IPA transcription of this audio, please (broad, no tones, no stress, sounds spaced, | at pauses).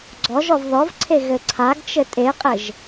ɡ͡ǀ ɔ ʒ ɔ v ð ɔ v ǀʰ e ɣ ɘ ǀʰ a ɡ t͡ʃ ɘ tʼ e qʼ ɘ ʒ